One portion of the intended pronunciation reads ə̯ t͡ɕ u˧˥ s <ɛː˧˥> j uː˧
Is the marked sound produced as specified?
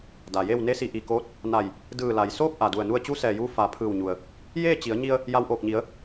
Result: no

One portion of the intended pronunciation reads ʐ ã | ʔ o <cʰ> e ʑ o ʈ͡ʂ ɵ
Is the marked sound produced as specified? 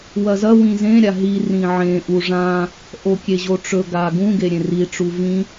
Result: no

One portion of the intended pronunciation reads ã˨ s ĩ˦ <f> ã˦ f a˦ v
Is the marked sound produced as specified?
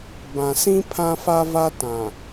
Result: no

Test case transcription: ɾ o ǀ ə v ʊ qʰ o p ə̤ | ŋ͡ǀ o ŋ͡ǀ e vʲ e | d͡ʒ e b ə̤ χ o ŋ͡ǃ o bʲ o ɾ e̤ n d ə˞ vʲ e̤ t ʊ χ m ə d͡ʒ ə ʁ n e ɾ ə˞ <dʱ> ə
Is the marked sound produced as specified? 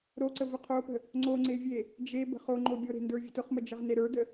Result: no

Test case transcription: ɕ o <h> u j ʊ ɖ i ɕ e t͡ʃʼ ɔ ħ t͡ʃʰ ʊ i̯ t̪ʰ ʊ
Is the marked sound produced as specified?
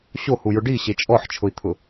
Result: yes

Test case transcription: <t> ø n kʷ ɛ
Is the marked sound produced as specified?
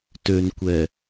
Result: yes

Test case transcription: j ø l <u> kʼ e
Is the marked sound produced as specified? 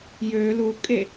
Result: yes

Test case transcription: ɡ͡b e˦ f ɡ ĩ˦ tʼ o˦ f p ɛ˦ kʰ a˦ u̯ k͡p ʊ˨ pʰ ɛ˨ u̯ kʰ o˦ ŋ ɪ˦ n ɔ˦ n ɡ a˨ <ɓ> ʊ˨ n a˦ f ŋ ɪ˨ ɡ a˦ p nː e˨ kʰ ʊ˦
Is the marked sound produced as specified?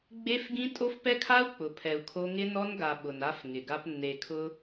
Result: yes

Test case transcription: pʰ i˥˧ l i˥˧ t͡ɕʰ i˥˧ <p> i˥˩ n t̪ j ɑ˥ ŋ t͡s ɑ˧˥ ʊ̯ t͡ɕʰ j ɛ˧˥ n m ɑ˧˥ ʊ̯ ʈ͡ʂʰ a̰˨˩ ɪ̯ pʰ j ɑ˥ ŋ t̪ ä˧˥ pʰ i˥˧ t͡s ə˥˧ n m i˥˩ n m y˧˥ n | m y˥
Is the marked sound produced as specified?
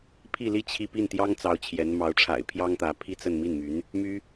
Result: yes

